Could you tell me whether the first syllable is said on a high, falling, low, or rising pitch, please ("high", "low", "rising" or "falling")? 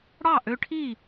falling